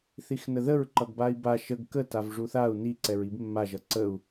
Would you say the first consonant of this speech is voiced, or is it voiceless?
voiceless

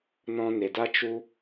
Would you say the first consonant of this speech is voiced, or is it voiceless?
voiced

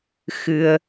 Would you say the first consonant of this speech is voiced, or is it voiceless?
voiceless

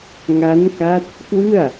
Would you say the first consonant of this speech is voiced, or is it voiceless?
voiced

